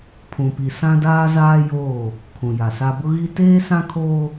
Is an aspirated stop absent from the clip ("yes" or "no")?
no